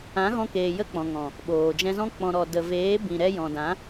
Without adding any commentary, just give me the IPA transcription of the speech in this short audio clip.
ã˨˦ ɣ ɔ̃˧ k eː˨ j ə˧ k͡p ɔ̃˨ ŋ ɔ̃˨ | ɓ oː˨ d͡ʒ ɛ̃˧ z ɔ̃˦ k͡p ɔ̃˨ ɾ ɔ˨ d ə˨ v eː˨˦ b ĩ˨ ɾ ɛ˧ j ɔ̃˨ d ã˨˦

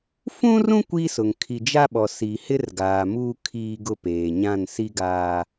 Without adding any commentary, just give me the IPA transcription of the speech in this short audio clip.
f ũ˦ r ũ˦ kʷ i˦ s ʊ˨ ŋ kʰ i˨ d͡ʒ a˦ ɓ ɔ˨ s i˨ h ɪ˦ r ɡ aː˨ m uː˦ kʰ iː˦ ɡ ʊ˦ p eː˨ ɲ ã˦˨ n s i˦ ɡ aː˦

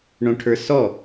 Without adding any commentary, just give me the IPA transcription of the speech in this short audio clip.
ɳ õ ʈʰ ə˞ s ɔ

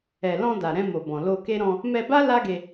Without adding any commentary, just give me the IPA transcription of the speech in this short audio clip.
ɛ˨ l ɔ̃˧ d a˨ ɾ ɛ̃˧ m o˨ b ɔ̃˨ l o˧ k e˦ ɾ ɔ̃˧ | m ɛ˧ b a˦ l a˦ ɡ e˧

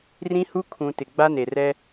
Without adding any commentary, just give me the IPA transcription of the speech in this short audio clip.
r ĩ˦ h u˦ kʰ ũ˨ t ɪ˨ ɡ͡b a˦ n e˨ r ɛ˦

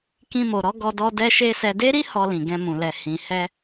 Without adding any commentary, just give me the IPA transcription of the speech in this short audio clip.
k ĩ˧ m o˨ ɾ ɔ˨˦ ɡ ɔ˧ d ɔ˧ d ɛ˦ ʃ e˦ s ɛ˧ d e˦ ɾ i˦ h ɔ˧ l ĩ˨ ɡ ɛ̃˧ m ũ˨ l ɛ˨ h ĩ˨ h ɛ˧

